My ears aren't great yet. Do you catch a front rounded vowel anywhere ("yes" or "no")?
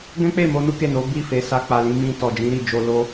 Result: no